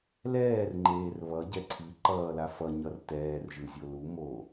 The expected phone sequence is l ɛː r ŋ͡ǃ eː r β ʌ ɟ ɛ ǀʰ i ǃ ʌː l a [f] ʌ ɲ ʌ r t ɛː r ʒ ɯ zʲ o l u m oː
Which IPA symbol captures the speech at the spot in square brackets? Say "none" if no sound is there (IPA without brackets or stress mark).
f